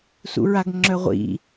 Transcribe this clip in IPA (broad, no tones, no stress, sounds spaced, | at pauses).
s ṵ ɹ a ɡ ŋ͡ǁ œ ʁʷ ḭ